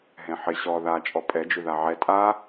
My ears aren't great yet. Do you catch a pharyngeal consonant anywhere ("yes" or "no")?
yes